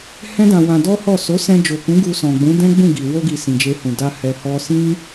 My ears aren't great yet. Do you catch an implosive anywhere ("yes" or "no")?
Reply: no